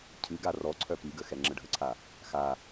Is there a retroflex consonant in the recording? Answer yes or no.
yes